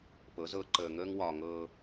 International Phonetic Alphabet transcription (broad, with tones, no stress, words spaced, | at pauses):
pɤ˨˦zɤ˨˦ǃəː˨ŋəː˦ŋ wɒ˦ ŋɤː˦